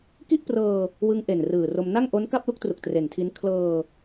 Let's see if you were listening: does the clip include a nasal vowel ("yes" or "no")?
no